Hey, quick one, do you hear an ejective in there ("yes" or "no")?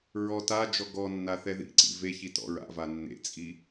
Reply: yes